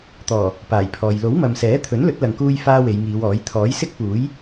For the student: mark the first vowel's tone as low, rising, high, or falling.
low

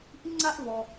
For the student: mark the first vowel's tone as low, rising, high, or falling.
high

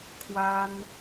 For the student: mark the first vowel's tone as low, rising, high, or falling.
high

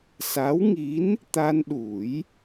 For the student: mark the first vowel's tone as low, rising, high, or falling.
rising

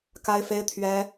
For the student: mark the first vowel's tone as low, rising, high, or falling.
high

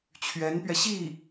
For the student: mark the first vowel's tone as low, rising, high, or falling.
rising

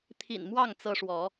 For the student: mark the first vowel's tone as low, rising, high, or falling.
low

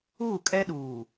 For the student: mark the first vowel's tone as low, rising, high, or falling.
falling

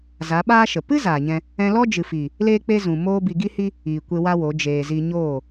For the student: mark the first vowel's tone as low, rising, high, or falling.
rising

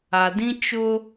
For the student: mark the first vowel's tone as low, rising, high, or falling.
low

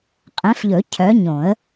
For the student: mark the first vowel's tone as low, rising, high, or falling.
rising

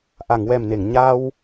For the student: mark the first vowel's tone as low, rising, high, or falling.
low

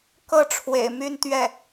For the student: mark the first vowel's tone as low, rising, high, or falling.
falling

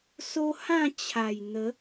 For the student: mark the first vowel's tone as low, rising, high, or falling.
high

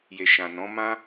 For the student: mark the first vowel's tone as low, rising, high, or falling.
low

